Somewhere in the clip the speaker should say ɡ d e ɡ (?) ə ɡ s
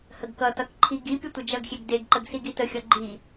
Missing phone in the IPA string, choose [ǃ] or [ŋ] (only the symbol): ǃ